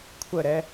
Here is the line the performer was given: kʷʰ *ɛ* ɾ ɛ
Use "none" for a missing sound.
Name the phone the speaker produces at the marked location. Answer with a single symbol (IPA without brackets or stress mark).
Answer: ə